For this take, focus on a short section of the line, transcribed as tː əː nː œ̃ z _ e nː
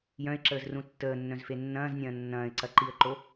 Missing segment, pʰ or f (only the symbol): f